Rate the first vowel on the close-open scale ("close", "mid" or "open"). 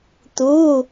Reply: close